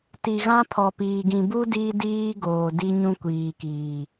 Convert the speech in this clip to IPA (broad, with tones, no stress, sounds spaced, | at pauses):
t i˨ ɣ ã˦ pʰ ɔ˨ p iː˨ ɡ ĩ˨ b u˦ d iː˦ d iː˦ ɡ oː˨ d i˦ ɲ ũ˦ kʷ iː˨ k iː˨